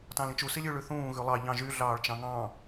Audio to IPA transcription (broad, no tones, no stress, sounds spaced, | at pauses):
t ɑ̃ l ĩ t͡ʃ u s i lʲ ʉ ɭ ʉ θ ũː ɣ ʉ lˠ ɑ ʎ ɑ̃ ʒ y ɮ ɑː ɭ t͡ʃ ɑ̃ ŋ ɑ̃